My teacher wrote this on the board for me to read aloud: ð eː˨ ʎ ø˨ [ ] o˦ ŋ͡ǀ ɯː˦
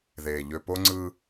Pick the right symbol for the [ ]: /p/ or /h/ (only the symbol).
p